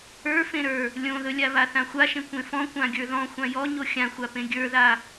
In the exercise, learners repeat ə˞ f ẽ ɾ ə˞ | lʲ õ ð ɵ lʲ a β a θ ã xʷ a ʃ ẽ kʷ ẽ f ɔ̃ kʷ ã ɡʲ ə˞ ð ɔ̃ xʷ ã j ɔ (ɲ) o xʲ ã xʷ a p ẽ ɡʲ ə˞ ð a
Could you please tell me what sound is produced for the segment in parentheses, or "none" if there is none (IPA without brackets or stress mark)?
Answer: ɲ